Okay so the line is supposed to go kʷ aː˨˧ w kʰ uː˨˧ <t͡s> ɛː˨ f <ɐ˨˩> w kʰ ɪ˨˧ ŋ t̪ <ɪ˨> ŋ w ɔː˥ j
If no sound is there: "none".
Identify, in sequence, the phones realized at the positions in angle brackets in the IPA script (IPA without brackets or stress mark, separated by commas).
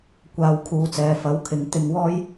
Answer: t͡s, ɐ˨˥, ɪ˨˧